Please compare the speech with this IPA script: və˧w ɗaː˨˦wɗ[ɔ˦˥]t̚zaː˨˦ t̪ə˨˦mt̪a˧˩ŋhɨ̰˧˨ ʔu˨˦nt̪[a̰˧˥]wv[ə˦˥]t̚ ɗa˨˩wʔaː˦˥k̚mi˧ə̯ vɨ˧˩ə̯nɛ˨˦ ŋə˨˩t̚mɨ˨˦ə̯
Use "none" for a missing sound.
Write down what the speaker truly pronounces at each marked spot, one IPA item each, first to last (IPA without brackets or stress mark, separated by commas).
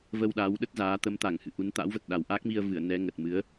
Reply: ə˦˥, a̰˧˥, ə˨˩